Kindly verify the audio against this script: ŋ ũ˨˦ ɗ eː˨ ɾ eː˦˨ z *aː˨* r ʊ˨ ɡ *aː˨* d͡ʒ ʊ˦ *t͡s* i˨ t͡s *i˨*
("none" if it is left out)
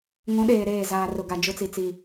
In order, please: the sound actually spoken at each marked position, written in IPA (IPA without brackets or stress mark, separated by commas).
aː˨, a˨, t͡s, i˨